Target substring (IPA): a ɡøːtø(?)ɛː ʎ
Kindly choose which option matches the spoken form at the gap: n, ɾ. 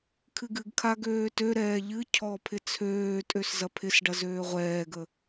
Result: ɾ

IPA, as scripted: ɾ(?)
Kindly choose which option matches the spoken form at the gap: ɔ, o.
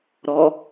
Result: ɔ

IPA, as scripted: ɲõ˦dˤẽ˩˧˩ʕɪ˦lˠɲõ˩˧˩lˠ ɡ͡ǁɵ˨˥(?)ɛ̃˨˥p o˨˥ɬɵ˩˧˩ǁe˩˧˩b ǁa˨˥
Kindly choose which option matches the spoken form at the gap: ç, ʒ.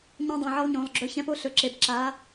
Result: ç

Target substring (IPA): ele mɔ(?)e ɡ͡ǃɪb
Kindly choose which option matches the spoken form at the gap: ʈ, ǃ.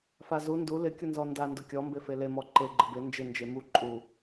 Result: ǃ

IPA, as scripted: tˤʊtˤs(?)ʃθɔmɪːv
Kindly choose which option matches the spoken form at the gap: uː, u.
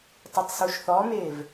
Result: u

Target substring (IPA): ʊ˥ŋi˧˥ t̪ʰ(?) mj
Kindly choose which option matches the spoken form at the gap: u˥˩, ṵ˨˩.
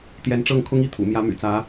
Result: ṵ˨˩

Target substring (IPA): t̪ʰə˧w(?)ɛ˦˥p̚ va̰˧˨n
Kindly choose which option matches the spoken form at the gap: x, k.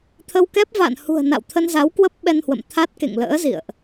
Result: k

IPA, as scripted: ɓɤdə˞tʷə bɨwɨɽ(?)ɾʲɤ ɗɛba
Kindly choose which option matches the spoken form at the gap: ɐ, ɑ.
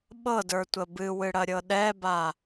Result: ɐ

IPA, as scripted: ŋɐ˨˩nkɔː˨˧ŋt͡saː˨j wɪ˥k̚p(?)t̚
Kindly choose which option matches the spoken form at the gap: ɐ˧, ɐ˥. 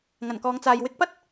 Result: ɐ˥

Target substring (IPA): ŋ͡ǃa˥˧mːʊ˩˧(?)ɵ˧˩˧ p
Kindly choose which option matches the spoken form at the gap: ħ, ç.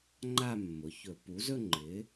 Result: ç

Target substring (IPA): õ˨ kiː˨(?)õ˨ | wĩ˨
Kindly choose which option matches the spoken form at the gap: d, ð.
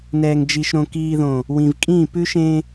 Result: ð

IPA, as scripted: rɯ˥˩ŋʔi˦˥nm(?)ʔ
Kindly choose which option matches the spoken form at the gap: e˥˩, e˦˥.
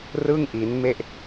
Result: e˥˩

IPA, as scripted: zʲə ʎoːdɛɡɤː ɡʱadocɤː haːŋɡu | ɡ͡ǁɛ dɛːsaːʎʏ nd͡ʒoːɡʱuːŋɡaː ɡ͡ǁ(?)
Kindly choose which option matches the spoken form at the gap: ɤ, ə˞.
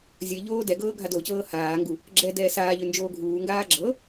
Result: ɤ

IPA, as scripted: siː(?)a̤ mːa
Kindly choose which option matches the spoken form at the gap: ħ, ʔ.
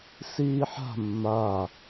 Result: ħ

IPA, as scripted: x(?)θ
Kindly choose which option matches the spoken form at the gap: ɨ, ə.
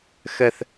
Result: ə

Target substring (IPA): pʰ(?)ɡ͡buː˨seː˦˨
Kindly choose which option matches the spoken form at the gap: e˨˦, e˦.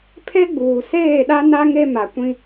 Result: e˦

